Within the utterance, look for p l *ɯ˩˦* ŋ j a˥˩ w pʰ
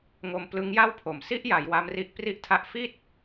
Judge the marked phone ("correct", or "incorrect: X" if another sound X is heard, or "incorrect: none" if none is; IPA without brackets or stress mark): incorrect: ɯ˦˥